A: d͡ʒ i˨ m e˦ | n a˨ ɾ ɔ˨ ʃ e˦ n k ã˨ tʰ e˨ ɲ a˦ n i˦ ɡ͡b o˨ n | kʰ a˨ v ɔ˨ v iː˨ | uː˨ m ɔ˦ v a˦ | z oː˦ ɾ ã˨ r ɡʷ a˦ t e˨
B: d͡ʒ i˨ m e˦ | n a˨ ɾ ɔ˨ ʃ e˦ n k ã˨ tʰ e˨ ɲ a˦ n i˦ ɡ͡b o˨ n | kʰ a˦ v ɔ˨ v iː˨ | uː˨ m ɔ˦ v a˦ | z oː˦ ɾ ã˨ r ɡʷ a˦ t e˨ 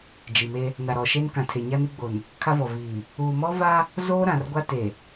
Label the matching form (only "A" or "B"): B